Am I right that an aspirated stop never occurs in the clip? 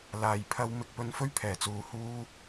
no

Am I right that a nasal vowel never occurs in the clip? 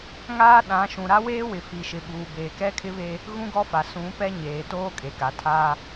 no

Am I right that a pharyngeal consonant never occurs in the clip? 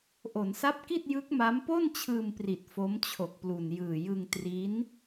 yes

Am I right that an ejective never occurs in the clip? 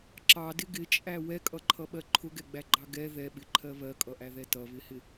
no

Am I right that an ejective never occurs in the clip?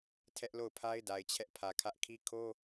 yes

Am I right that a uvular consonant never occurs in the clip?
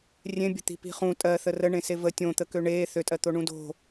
no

